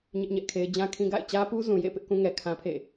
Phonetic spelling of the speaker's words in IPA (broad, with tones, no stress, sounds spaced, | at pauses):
ɲ ɪ˦ ʔ ɲ ɛ˦ ʔ kʰ e˦ ɪ̯ d͡ʑ ã˦ kʰ ĩ˦ ɡ a̰˦˨ ɪ̯ t͡ɕ ä˦ p u˦ z ũ˨ j ḛ˦˨ p ɪ˦ ʔ k ũ˦ ŋ ɛ˨ kʰ ã˦ pʰ ḛ˦˨